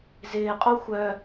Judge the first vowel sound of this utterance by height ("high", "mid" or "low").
high